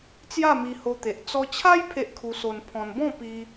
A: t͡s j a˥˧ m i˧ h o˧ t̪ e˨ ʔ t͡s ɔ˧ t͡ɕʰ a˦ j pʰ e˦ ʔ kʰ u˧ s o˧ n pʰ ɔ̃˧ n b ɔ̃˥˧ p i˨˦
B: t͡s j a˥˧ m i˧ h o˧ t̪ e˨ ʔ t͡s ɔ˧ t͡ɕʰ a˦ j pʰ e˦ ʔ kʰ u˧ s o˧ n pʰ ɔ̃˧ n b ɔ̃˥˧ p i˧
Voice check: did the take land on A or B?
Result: B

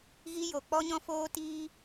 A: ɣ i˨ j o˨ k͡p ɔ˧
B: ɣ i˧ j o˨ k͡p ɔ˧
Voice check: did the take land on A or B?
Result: B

